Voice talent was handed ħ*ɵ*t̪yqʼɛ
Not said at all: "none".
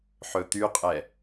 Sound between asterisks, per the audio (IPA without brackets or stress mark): ɵ